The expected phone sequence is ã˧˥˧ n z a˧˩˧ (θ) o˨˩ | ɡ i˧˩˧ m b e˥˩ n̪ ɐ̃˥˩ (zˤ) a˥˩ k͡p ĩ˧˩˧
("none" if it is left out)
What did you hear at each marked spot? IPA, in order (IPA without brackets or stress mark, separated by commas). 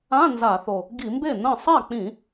θ, sˤ